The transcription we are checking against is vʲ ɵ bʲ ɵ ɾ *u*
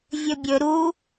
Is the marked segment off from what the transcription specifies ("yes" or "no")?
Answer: no